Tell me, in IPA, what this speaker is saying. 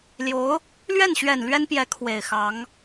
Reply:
l j o˧˥ ʊ̯ | l ɥ ɛ˥˩ n ɕ ɥ ɛ˨˩ n l ɥ ɛ˥ n p j ɛ˧˥ kʰ w e˨˩ ɪ̯ x ɑ˧˥ ŋ

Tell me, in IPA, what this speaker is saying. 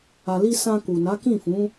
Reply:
a˨ l i˧ s ã˧ k u˨ n a˨˦ k ĩ˦˨ f ũ˨˦

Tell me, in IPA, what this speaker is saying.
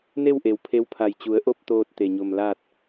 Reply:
n e˥˨ w ʔ e˩ w pʰ e˧˥ w pʰ a˧˩ j t͡ɕ u˩˧ ə̯ ʔ o˥˨ p̚ t̪ oː˧ t̚ t̪ e˧˩ ɲ o˧˩ m l aː˥˨ t̚

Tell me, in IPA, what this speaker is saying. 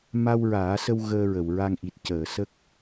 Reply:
m a˧ w ɹ aː˨˩˦ s ə˧ w ɣ əː˧ ɹ ə˨˩˨ w ɹ a˧ ŋ ʔ i˨˩ t̚ c əː˨˩˨ s ə˦˥ k̚

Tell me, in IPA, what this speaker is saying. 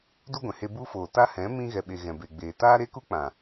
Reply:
d u˦ ɡʷ ɛ̃˨ h e˧ b u˦ f oː˨ t a˦ h ɛ̃˨˦ m ĩ˧ ɣ ɛ˨ ɓ e˨ ɣ ɛ̃˨ b e˨ ɡ͡b eː˨ t aː˦ ɾ e˦ k u˦ k͡p ã˨

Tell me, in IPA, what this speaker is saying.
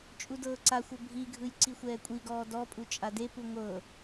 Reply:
t͡ʃʼ u d ɤː ǀ a xʷ ɤ bʱ i ɡʱ ɯ j ǀ i xʷ ɛː kʷʼ i ɡ ɔː d ɔ pʼ u t͡ʃʼ a d e p u ŋʷ ɤ

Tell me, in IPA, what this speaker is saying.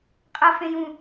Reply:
qʼ ʌ f ẽ j ũ

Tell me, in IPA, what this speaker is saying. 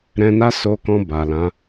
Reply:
ɾ ɛ̃˧ n a˦ s o˧ k ɔ̃˧ b a˨ l ã˨˦

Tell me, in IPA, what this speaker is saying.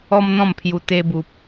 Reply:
ɔ˦ m n̪ ɔ̃˥˧ m pʰ j u˧ t̪ e˧ b u˨ p̚

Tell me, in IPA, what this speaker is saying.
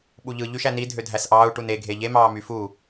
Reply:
ɓ u ʎ ɯ ʎ y ʃ æ n i dʱ ø dʱ æ s ʔ ɑː u̯ ʈ u n e ɡʱ e ʎ e m ɑː m y f u

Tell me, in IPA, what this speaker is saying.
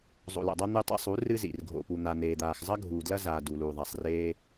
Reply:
zˤ o̰˨ l o̰˨ dˤ a˧ n̪ ɨ˧ tˤ ḭ˧ sˤ u˨˦ r ɨ˧ z ḭ˨ r ɡʱ o̰˨ p u˨ n̪ a˨ n̪ eː˨ d̪ aː˨ x zˤ ɐ˦ ɡʱ uː˨ d l ɐ˧ z aː˨ d u˨ l uː˨ ðˤ a˨ sˤ r eː˧

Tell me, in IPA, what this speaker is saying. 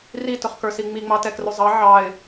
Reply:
r i t ʊ χ k ə˞ s i ŋ͡m i ŋ͡m ɑ t ɛ k r ʊ zˤ ɑ ʕ ɑ ɪ̯

